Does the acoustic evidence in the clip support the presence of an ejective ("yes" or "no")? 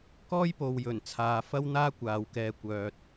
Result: no